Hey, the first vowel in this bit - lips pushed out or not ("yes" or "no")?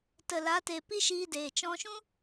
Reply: no